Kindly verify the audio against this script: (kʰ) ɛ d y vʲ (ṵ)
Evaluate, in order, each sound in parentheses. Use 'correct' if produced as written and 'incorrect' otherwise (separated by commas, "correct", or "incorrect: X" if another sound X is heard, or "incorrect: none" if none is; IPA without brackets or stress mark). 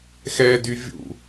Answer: incorrect: x, correct